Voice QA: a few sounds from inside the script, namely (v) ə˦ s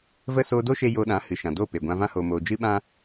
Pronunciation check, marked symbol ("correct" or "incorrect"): correct